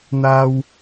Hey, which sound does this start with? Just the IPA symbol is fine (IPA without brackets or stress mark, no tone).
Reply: n̪